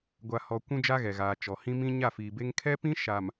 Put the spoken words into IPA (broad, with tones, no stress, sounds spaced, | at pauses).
ɡʷ a˨ h ɔ˨ kʷ ũ˦ d͡ʒ a˦ ɣ ɛ˨ ɣ aː˨ t͡ʃ ɔ˨ h ĩ˦ m ĩ˦ ɲ a˦˨ f iː˨ b e˦ ŋ kʰ ɛ˦ p ĩ˦ ʃ a˨ m